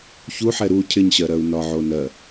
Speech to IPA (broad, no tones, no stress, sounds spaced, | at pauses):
ç u ħ ɛ ɾ u cʰ ɪ ɲ ɕ ɜ ɾ ɜ u̯ n ɒ ʕ o n ɜ